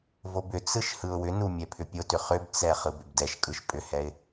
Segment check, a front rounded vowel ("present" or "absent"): present